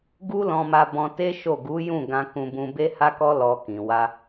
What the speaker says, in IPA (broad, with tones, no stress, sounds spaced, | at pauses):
ɡ u˦ l ɔ̃˧ m a˧ b ɔ̃˧ t e˦ ʃ o˦˨ ɡ u˨˦ j ũ˦˨ ɡ ã˧ k ũ˧ b ũ˧ b e˦ h a˦ k ɔ˦ l ɔ˧ k ĩ˨ w a˧